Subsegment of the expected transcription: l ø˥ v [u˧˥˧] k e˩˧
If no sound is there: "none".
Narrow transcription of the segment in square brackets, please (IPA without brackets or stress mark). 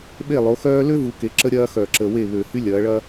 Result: u˩˧